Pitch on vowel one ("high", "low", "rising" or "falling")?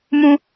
high